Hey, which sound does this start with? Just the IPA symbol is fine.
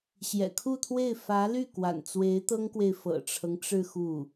ɕ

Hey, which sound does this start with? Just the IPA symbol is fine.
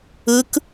ɯ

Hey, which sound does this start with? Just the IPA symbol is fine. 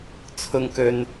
t͡sʰ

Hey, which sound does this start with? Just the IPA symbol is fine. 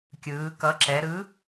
kʲ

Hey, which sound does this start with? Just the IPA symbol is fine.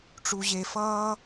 ʈ͡ʂ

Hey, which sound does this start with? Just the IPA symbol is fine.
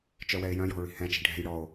t͡ʃ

